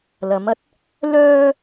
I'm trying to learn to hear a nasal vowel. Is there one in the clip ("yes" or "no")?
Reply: no